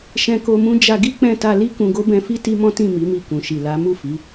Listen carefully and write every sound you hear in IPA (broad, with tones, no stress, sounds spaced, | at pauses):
ʃ ɛ̃˧ k o˧ m ũ˦ d͡ʒ a˧ ɡ i˦ k͡p ɛ̃˦˨ t a˧ l i˦ k ũ˧ ɡ o˦ b ɛ̃˧ f i˦ t i˦ m ɔ̃˦ t ĩ˦˨ m i˨˦ m i˧ k ũ˨ ʃ i˨ l a˨˦ m u˦˨ f i˨˦